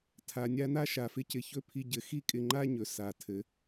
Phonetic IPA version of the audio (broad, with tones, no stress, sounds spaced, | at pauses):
tʰ a˨ nʲ a˦ n a˦ ʃ a˨ f ɪ˦ c ɪ˧ ç ɵ˧ pʰ i˧ ɟ ɘ˨˦ x i˦ kʼ ɪ˧ ŋ͡ǃ a˦ ɲ ɵ˨ s a˨ tʰ ɘ˨˦